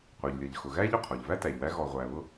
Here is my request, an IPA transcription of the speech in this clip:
qʷ ə˞˩ ʎ lʲ ʌ˩ ʎ x ʊ˩ ɣ æ˥ ʎ ʊ˩ qʰ ɔ˩ ʎ v æ˥ t æ˩ ʎ w æ˦ ɣ ɔ˨ ʁʷ æ˨ β ʊ˥

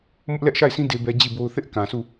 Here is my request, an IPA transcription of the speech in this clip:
m ʊ˦ ʔ l ɛ˦ ʔ ʃ a˦˨ ɪ̯ s ĩ˦ d e˦ b ɛ˦ d͡ʑ i˦˨ b o˦ ʊ̯ θ ɪ˦ ʔ k ã˨ s u˦˨

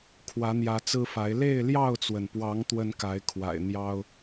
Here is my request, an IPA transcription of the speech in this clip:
kʰ w ä˨˦ n̪ j ä˨˦ t͡s ɹ̩˦ f a˨˦ ɪ̯ l e˥˨ ɪ̯ l j ɑ˥˨ ʊ̯ t͡s w ə˩ n p w ɑ˨˦ ŋ t̪ w ə˦ n k a˨˦ ɪ̯ kʰ w a̰˨˩ ɪ̯ n̪ j ɑ˦ ʊ̯

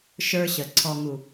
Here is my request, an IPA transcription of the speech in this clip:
ʃ ə˞˧ ɕ ə˨ ǀʰ ɔ˨ ŋ u˨

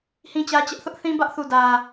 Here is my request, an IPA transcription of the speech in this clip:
h ĩ˦ t͡ɕ ä˦ t͡ɕ ɛ˦ ʔ θ ʊ˦ ʔ θ ĩ˦ b ä˦ ʔ θ u˨ d ä˨

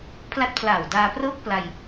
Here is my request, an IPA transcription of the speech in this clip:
pʰ l a˦˥ t̚ pʰ l aː˨˩ w d aː˧ p r ɤː˥˩ k̚ p l a˧ j

